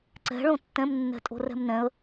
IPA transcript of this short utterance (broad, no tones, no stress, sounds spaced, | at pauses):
ǀ ɛ̤ ɭ õ tː ɛ̃ m nː ɛ̤ tʼ o̤ r ɛ̤ m n ɛ̃ ə̯